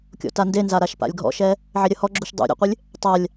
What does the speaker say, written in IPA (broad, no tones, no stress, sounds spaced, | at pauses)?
kʲ ɔ̰ t a n d e n z a ɾ a ʃ p a̰ lʲ ɡʱ ɔ̰ ʃ ɛ | ʕ e ɾʲ ɐ h ɔ ɡ͡ǁ u ʃ dˤ ṵ ɾʲ ɛ̰ qʷ ɨ lʲ | tˤ a lʲ